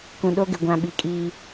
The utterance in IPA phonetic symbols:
k ũ˨ ɗ o˦ ɡ ɪ˨ ɡʷ ã˨ ɓ i˨ kʼ iː˦

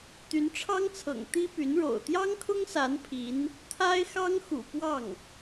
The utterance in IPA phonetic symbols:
t̪ y˧˥ n ʈ͡ʂʰ ɑ˥ ŋ t͡sʰ ɤ̰˨˩ ŋ t̪ i˥ p y˧˥ n ɻ o̰˨˩ ʊ̯ t̪ j ɑ˥ ŋ kʰ ʊ˥ ŋ s a˧˥ n pʰ i˧˥ n | t̪ʰ a˥ ɪ̯ x ɑ˥ ŋ x ṵ˨˩ p w ɑ˥˩ ŋ

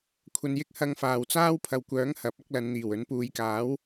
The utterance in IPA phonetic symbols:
kʷʰ ɐ˨ n j ɪ˥ k̚ h ɐ˧ ŋ f aː˨˩ w t͡s aː˥ w pʰ ɐ˨ w kʷ œː˨˥ ŋ h ɐ˨˥ p̚ ɐ˥ k̚ l ɐ˨˧ n n̪ iː˨˩ w ɵ˨˥ n p uː˨˧ j k aː˨˥ w

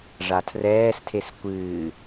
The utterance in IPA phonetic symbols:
ʐ a tʰ r ɛː s tʰ e s kʷ ɨː

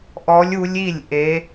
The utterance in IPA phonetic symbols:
ʔ ɔ˦˥ lʲ u˦˥ lʲ i˥˧ lʲ ʔ e˦˥

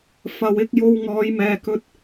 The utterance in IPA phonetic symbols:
f ɐ˨ w ɪ˧ k̚ j o˧ w ŋ ɔː˨˧ j m ɛː˨ k ɵ˧ t̚

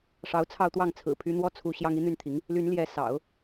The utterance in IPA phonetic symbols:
ʂ ɑ˧˥ ʊ̯ t͡sʰ ɑ˥˧ ʊ̯ t̪ w ɑ˥˩ ŋ t͡sʰ ɹ̩˨˩ pʰ y˧˥ n̪ w ɔ˥˩ t͡sʰ u˧˥ ɕ j ɑ˥ ŋ i˧˥ n̪ y˥˩ n t̪ʰ i˧˥ ŋ | l y˧˥ n l j ɛ˧˥ s ɑ̰˨˩˦ ʊ̯

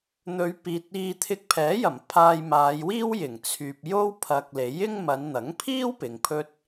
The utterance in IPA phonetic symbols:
n̪ ɵ˨˧ ɥ p iː˨ t̚ iː˧ t̪ʰ ɪ˧ k̚ pʰ ɛː˨˥ j ɐ˨˩ m pʰ aː˧ j m aː˨˧ j w iː˥ w j ɪ˨˩ ŋ t͡sʰ yː˨ p̚ j o˥ w pʰ ɐ˨ k̚ l e˨˥ j ɪ˥ ŋ m ɐ˨˧ n n̪ ɐ˨˥ ŋ pʰ iː˥ w p ɪ˨˧ ŋ pʰ ɵ˥ t̚

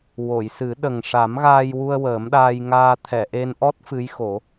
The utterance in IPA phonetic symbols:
w o˨˩˨ j s ɨ˨˩˦ ɗ ə˨˩ ŋ ʂ a˨˩˦ m ɣ aː˧ j w u˧ ə̯ w əː˨˩˦ m ɗ aː˧ j ŋ aː˧ t̪ʰ ɛ˨˩˨ ʔ e˧ n ʔ ɔ˦˥ t̚ f ɨ˧˥ j x o˨˩˦

